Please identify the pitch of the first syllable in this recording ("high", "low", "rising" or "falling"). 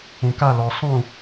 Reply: low